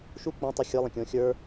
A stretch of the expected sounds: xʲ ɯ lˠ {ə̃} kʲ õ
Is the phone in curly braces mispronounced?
no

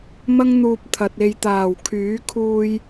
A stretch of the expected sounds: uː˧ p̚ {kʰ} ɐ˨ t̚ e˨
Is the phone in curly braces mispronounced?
yes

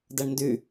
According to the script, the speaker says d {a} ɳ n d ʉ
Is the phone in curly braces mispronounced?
yes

